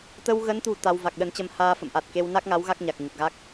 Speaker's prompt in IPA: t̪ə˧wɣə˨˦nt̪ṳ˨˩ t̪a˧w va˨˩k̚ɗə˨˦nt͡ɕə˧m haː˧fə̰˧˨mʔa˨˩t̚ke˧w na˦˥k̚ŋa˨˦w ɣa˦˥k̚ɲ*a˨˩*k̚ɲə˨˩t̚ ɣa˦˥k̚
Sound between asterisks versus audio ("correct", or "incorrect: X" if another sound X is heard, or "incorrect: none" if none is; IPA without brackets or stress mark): correct